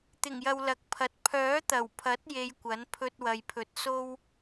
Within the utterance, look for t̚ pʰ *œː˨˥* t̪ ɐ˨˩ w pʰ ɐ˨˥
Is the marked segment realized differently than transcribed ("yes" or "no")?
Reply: no